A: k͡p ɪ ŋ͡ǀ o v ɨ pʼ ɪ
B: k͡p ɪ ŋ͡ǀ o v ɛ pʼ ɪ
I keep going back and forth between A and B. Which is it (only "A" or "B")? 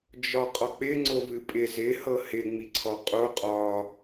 A